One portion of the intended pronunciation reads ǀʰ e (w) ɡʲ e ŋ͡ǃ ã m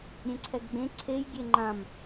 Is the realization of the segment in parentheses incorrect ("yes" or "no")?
yes